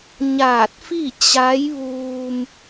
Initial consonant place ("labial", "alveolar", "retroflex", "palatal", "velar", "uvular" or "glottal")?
palatal